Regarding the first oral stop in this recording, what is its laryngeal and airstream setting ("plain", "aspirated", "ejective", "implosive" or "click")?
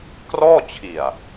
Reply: plain